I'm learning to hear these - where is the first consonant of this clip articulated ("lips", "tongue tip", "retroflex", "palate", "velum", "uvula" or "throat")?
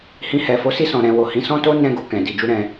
throat